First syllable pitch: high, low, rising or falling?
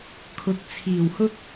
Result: rising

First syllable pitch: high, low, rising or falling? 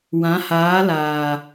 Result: rising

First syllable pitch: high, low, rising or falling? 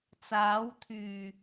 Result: rising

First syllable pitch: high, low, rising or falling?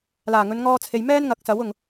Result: low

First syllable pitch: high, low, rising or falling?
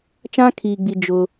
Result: high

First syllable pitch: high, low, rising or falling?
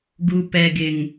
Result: low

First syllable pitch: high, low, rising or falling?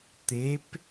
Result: rising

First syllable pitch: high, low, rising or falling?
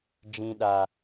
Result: low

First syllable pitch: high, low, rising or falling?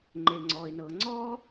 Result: low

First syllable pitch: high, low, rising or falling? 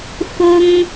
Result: high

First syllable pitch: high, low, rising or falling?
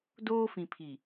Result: high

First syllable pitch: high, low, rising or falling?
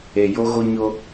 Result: low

